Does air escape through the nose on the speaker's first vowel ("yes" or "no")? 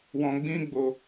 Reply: yes